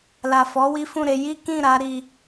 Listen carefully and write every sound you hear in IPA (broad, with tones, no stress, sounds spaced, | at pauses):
l a˨ f ɔ˨˦ w i˦ f ũ˦˨ ɾ e˧ j i˦ k ĩ˦˨ ɾ a˨˦ ɾ i˧